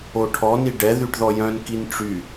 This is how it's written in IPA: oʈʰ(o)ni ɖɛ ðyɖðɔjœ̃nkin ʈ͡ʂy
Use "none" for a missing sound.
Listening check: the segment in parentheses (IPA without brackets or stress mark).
ɔ